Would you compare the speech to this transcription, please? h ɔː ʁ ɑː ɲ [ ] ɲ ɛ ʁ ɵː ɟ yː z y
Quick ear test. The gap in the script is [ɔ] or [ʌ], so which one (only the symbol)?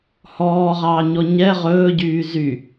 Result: ɔ